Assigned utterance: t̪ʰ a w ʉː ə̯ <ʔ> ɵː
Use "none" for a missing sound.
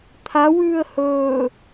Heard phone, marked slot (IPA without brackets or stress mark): h